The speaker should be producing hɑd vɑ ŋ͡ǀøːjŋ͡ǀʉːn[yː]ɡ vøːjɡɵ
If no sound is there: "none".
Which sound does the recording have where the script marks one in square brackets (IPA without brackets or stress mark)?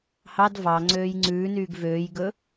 yː